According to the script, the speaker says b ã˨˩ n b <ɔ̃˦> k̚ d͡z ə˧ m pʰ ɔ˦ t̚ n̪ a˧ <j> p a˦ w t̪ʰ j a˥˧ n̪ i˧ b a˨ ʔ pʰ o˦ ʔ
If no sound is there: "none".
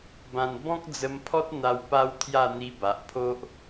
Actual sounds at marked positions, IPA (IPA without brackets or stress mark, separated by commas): ɔ̃˦, w